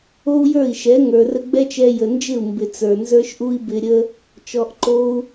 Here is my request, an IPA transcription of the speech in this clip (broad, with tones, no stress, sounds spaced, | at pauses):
o˦ u̯ j ə˞˦˨ i̯ ʃ ɛ˨˦ ŋ ə˞˨ r ə˧ ɡ͡b ɛ˦ t͡ʃ ɛ˧ j ə˨ n d͡ʒ ɪ˦˨ u̯ m b ɪ˨ t͡s ə˞˨ n z ə˞˦ ʃ ʔ u˦ i̯ b ɪ˧ ɾʲ ə˦ | t͡ʃ ɔ˧ ʔ ǃ o˦ u̯